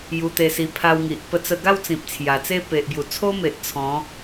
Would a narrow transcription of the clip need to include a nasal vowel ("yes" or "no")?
yes